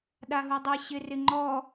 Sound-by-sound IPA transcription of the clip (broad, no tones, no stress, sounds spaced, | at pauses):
ɗ a ɦ u dˤ ɪ ɕ ɪ r ɪ ŋ͡ǃ ɔ